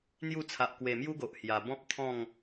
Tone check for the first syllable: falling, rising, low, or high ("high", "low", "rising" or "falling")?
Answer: falling